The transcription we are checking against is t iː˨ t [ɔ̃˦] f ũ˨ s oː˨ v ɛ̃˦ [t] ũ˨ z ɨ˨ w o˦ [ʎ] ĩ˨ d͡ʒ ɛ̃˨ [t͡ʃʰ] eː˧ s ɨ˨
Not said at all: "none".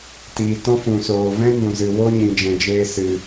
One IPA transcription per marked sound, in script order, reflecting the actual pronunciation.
ɔ̃˦, n, ɲ, d͡ʒ

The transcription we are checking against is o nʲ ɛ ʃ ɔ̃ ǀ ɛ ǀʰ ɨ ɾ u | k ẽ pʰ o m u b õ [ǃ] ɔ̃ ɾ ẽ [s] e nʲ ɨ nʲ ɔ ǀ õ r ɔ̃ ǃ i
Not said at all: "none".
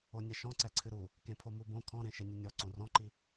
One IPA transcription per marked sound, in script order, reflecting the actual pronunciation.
kʰ, ʃ

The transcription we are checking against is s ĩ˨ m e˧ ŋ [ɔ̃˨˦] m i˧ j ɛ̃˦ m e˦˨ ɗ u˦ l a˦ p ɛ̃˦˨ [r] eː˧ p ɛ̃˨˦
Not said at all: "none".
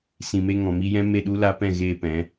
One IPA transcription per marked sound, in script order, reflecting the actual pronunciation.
ɔ̃˨, ɣ

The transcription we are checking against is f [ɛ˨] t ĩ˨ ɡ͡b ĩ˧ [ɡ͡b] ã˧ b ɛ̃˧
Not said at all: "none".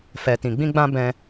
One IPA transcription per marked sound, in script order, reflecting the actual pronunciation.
ɛ˨, ɡ͡b

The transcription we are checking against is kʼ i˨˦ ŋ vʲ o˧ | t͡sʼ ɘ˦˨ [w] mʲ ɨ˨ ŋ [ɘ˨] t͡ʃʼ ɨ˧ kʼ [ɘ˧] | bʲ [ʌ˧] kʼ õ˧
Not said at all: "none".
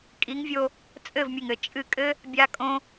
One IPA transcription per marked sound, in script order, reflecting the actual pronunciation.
v, ɘ˨, ɘ˦, a˧

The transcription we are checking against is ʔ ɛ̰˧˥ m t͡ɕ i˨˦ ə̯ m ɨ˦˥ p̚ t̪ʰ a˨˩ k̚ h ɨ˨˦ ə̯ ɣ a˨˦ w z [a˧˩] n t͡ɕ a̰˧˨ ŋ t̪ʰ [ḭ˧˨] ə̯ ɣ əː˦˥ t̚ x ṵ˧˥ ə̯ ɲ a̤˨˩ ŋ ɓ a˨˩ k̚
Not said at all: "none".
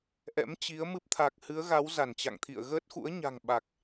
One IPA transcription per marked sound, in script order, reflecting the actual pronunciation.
a˧˩, ḭ˧˨

